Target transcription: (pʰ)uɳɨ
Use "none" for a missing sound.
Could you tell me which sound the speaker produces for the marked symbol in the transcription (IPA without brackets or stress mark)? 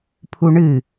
pʰ